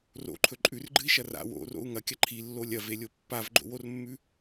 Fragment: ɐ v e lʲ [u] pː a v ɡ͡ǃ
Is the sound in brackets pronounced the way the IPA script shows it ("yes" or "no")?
no